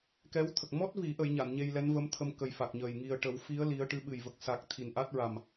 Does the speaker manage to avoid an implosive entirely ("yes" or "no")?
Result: no